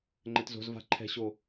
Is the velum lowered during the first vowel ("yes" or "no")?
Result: no